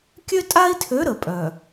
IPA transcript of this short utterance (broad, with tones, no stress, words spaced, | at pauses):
kʲø˦tʼa˦i̯tʰø˨˦ ɾə˨ pʼœ˨